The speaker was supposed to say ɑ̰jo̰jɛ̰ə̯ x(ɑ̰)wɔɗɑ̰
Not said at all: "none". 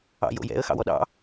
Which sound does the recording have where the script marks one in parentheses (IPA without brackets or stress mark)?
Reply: ɑ̰